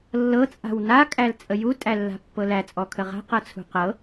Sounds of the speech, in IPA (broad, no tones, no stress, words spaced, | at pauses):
lːɤ t͡sʼa̤wna kʼælt͡sʼəju tʼælːa̤pːɤlæ t͡sʼɔkʰəʁa̤ qɤt͡sʰṳqɤ